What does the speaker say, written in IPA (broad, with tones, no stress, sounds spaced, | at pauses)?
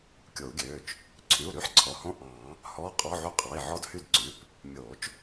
kʲ o˨˩˦ u̯ ɡʲ øː˩˧˩ t͡ʃ | ǀʰ y˩˧˩ u̯ ɾ y˧˥˧ ħ ǀʰ ɔ˩˧˩ h õ˧˥˧ ʔ ɑ̃ː˨˩˦ | h ɔː˧˥˧ qʼ ɔ˧˥˧ ʕ y˦˥ qʼ ɑ˩˧˩ i̯ ʕ ɔ˧˥˧ d h y˦˨ d ǀ ʉ˩˧˩ p | mʲ oː˨˩˦ t͡ʃ